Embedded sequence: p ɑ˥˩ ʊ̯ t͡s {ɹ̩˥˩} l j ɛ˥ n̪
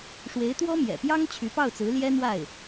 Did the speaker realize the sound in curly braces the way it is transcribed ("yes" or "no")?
no